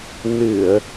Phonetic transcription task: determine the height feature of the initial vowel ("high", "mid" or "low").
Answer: high